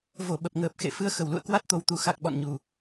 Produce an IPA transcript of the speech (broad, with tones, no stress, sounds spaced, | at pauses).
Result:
v o˧˩ ɓ ə˨˩ p̚ ŋ əː˨˩ p̚ x ḛ˧˨ f ɨ˧ ə̯ x ə˧˩ w l ṵ˧˨ ə̯ k w a˦˥ t̚ t̪ o˨˩ w t̪ u˨˩ x a˨˩ k̚ ɓ ɔ̰˧˨ n ɲ u˨˩